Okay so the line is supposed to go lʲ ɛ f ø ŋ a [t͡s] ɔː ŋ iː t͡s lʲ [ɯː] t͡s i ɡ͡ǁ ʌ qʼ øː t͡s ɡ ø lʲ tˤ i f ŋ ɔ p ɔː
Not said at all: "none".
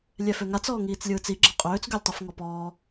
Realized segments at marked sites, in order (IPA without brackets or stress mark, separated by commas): t͡s, ɯː